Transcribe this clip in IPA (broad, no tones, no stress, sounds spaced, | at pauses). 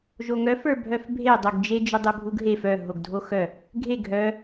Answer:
ʒ o ŋ œ f ə˞ bʱ œ f bʱ e dˤ o ɡ d͡ʒ e d͡ʒ ʏ dˤ e bʱ u ɡ ɦ e f œ ɦ o ɡ dʱ o x œ | ɡʱ e ɡʱ œ